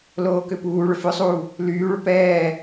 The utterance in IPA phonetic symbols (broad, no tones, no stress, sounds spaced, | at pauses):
l oː k ʏ p uː ɭ ʏ f ʏ sˤ uː | l yː ɭ ʏ p ɛː